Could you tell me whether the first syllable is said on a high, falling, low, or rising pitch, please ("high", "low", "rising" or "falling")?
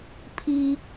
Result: high